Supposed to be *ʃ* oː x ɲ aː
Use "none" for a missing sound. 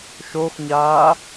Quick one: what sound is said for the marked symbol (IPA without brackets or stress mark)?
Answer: ʃ